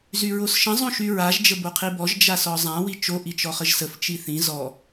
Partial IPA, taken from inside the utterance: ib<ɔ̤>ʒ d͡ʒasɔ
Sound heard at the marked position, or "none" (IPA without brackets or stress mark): ɔ